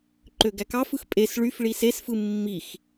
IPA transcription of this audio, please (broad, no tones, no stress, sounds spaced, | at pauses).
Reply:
ǃ ø ɡ æ k ɑ f ɯ x pʼ e s ɭ y f ɭ i s e s f ɯ mː i x